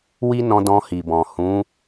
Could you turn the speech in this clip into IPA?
w i˦ n ɔ̃˧ d ɔ̃˧ h i˨ b ɔ̃˨ h ũ˨˦

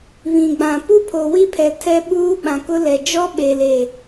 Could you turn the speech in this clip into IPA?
β ĩ˨ ɡ͡b ã˨ p u˦ pʰ o˨ w i˦ pʰ ɛ˨ tʰ ɛ˦ ɓ uː˦ ɓ ã˨ k ʊ˦ l ɛ˨ d͡ʒ ɔ˦ ɓ e˨ l e˨

